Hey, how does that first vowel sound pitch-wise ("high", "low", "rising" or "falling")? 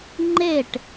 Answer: falling